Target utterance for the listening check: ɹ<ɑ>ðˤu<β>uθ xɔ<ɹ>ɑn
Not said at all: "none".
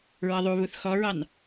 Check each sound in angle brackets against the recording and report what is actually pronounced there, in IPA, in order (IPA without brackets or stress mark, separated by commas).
ʌ, β, ɹ